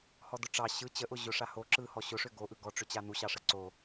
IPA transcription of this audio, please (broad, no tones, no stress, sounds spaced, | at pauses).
h ɔ d ʊ ʈ͡ʂ ɑ ɕ ɯ t͡ɕ ə ʔ ʊ ʑ ʊ ʂ a h o ǁ ɯ h ɔ ɕ ʊ ʂ ʏ ɡ o ʔ ɯ ɡ ɔ ʈ͡ʂ ʏ t͡ɕ a n u ɕ ɑ ʂ ə ǀ o